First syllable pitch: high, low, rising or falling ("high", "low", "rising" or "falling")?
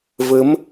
rising